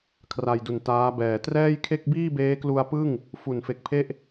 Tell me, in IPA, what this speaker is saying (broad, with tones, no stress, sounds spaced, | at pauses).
kʰ r a˧ j d u˨˩ n t aː˦˥ b ɛː˨˩ t r ɛː˥˩ j kʰ e˥˩ k̚ b iː˥˩ b eː˦˥ k l u˧ a̯ p ɯ˥˩ ŋ | f u˨˩ n f e˨˩ k̚ pʰ e˥˩ ʔ